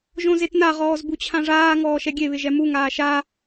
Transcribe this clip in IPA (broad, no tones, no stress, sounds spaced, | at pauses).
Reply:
ʒ õ z e t n a ʁ ɔː z b u t͡ɕʰ ã ʐ aː ŋ ɔː ʃ ɛ ɡʲ e β ɪ ʒ ɛ m u ŋ aː ʃ a